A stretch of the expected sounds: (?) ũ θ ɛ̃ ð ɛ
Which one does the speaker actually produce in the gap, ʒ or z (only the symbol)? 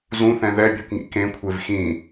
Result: z